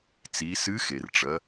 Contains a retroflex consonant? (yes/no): yes